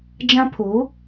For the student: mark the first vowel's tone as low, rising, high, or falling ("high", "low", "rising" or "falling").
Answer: high